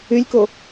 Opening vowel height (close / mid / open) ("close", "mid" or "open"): close